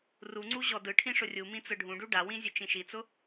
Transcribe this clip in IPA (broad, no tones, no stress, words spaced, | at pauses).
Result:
ruŋ͡ǀu ʑɔdɯʈʰĩ ʂʊrʲumĩ t͡sɯɖʱũɖu ɖawĩ zʲʊt͡ʃĩʃit͡sʊ